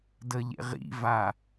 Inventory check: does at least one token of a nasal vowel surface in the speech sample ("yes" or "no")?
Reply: no